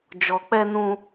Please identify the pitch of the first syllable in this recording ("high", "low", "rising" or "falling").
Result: low